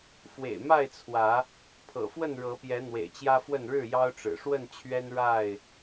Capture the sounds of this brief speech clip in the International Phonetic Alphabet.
f w ḛ˨˩ ɪ̯ m a˥˨ ɪ̯ t͡sʰ w ä˨˦ | pʰ ɤ̰˨˩ f w ə˥˨ n ɻ ɤ˨˦ p j ɛ˨˦ n̪ w ḛ˨˩ ɪ̯ t͡ɕ j ä˦ f w ə˥˨ n ɻ ɻ̩˥˨ j ɑ˦ ʊ̯ ʈ͡ʂ ɻ̩˨˩ ʂ w ə˥˨ n t͡ɕʰ ɥ ɛ˦ n ɻ a˥˨ ɪ̯

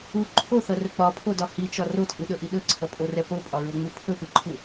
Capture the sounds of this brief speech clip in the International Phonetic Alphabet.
u ǃʰ o θ ʌ r ɵ k͡p ɒ pʰ o d ɒ h i t͡ʃ ɒ r o tʼ ɯ ɗ ɵ ʔ i ɗ ɵ ǀʰ ʌ pʼ o r ɛ p o pʼ ɒ ɹ o ŋ͡m u pʰ ɵ p ɯ ǃʰ u

